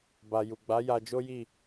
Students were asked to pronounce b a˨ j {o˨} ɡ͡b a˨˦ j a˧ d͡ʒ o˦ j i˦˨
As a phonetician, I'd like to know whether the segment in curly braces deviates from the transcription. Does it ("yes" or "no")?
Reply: yes